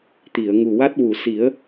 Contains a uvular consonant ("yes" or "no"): no